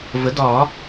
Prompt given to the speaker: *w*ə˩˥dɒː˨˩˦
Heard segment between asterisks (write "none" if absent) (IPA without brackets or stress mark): v